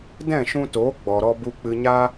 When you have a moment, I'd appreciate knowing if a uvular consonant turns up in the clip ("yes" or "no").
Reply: no